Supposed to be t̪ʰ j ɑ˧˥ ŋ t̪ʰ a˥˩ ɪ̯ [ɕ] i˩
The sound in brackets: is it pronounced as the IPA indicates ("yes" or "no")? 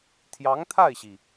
yes